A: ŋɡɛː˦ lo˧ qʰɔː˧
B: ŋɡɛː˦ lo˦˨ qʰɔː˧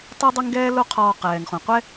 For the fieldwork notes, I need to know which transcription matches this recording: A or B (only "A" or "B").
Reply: A